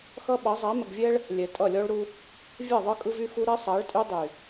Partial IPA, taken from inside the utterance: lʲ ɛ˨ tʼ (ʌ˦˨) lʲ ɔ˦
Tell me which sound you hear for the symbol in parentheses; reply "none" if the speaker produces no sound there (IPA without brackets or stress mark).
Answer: ʌ˦˨